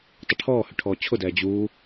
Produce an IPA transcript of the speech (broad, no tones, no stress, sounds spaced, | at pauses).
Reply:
tˤ ə ʈʰ ɔː h ʏ ʈʰ ɔː t͡ɕʰ ʊ d ɛː d͡ʑ uː